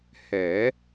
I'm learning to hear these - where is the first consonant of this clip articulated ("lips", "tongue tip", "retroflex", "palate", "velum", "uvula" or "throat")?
throat